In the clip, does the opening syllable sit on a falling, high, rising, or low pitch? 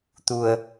low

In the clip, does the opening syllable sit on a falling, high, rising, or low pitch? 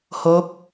rising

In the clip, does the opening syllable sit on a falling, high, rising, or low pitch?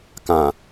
low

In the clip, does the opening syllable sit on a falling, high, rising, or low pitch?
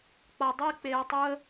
low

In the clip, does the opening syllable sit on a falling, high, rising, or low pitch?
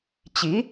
rising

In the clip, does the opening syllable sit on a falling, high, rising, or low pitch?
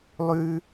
high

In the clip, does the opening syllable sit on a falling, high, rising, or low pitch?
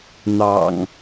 low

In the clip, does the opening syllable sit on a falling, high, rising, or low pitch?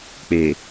low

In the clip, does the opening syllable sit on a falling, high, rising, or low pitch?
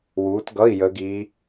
rising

